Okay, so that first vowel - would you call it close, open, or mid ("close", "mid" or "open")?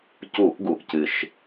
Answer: close